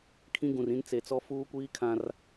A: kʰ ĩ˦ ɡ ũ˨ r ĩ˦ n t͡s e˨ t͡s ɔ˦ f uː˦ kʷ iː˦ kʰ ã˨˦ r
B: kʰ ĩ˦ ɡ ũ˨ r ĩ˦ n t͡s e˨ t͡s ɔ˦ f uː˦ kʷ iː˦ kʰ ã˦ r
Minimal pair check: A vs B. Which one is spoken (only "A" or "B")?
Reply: B